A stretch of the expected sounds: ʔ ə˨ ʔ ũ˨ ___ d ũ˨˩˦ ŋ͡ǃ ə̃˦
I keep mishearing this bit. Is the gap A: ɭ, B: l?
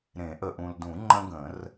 B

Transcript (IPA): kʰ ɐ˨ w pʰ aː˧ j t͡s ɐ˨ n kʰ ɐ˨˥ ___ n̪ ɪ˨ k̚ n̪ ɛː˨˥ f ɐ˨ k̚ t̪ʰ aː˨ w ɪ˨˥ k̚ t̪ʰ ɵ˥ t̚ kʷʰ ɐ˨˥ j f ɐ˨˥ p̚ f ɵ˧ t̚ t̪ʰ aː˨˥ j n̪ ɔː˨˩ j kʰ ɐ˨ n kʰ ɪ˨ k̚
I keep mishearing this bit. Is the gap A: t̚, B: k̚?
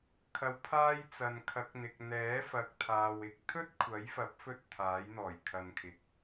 B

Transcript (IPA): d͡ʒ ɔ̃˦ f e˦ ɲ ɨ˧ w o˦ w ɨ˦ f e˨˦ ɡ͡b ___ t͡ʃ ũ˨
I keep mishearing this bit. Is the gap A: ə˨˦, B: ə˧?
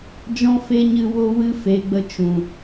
B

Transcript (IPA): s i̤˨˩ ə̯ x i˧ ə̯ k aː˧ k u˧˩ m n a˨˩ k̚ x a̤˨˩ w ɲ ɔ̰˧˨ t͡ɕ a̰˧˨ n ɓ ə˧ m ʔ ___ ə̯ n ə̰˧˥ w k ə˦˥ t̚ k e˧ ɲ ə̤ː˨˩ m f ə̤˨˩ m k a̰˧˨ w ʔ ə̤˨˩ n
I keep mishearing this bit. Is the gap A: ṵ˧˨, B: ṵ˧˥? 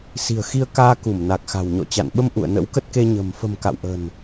A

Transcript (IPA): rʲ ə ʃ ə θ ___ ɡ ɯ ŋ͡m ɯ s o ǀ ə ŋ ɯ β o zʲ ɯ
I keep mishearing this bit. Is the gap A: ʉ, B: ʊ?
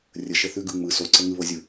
A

